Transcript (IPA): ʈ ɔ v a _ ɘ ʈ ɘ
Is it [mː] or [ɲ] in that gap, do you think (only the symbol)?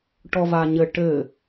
ɲ